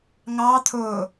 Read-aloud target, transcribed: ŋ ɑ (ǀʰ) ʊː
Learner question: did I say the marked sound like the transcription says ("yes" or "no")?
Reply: no